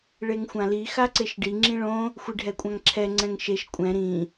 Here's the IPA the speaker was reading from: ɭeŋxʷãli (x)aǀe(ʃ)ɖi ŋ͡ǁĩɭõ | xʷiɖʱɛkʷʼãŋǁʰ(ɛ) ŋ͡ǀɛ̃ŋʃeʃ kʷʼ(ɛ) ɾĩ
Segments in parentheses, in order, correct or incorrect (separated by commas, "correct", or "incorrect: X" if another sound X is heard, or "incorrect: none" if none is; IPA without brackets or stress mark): correct, correct, correct, incorrect: ɛ̃